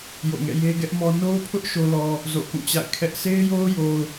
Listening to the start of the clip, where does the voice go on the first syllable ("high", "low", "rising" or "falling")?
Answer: falling